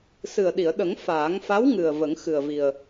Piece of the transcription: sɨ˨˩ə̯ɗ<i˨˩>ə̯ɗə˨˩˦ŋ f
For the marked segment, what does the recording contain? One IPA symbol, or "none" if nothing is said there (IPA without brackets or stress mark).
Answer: i˨˩˨